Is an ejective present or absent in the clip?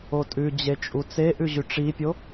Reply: present